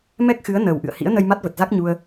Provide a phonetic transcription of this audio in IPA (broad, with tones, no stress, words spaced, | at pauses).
mɛ˦˥k̚xɨ˨˦ə̯ nəː˨˩wʔɨ̰˧˨ə̯hḭ˧˥ə̯ nə˧jma˦˥t̚və˨˩t̚za˦˥k̚ ɲu˧ə̯